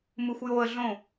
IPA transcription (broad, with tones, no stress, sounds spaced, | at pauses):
m ɯ˧ xʷ j oː˧ ə̯ ɮ õ˥˧